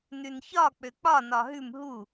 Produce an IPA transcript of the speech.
nʉnçɒ k͡pøk͡pɒ nɒɦʉm ɦu

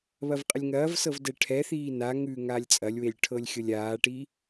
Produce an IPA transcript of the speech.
βɐvqʼəlʲŋɐːvsɤv dɛʈʰɛθiː naŋʉː ŋaːlʲt͡sʼɐlʲwelʲ ʈʰɤlʲxʲɤlʲaːʈi

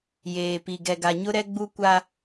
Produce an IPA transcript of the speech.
jeː˨pi˨ ɡɛ˨ɡa˨ɲʊ˦ɾɛ˦ ɡ͡bu˦kʷa˦

